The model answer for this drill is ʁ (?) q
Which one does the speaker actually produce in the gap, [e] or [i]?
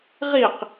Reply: i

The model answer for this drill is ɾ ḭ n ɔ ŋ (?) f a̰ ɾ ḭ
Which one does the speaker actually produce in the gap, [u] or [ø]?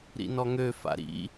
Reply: ø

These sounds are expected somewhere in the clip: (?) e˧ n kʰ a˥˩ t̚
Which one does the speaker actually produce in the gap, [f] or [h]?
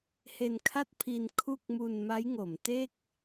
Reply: h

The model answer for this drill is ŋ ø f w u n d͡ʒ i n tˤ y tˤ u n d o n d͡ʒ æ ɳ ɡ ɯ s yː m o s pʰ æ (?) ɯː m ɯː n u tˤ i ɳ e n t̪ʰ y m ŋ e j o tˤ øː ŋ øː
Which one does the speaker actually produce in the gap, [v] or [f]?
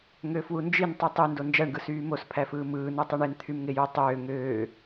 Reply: f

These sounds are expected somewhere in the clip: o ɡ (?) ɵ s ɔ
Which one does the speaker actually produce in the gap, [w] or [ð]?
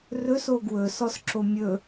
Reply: w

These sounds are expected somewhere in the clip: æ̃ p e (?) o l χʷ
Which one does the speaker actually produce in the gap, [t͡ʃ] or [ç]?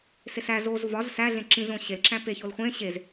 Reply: ç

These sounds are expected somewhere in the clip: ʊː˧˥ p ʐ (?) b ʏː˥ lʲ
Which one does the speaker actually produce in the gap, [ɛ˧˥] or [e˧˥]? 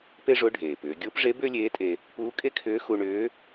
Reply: e˧˥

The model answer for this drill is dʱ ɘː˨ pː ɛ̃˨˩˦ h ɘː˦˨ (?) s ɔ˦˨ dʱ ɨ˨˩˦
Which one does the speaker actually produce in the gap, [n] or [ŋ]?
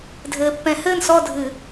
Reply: n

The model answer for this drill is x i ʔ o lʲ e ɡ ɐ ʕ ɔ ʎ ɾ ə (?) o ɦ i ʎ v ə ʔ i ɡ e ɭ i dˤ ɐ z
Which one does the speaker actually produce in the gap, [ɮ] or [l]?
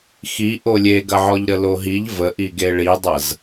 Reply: l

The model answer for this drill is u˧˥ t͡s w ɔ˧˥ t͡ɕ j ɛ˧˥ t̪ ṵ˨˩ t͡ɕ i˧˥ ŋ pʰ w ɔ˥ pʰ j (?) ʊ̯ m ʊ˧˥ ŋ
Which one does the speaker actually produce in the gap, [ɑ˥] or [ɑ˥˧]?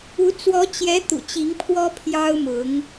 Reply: ɑ˥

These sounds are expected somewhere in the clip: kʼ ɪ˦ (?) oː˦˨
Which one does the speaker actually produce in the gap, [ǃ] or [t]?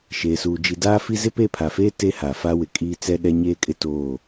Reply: t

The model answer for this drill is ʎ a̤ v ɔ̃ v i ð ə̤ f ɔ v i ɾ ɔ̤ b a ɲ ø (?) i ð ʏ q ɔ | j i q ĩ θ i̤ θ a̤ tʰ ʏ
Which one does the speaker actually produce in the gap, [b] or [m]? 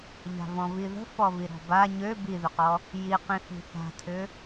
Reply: b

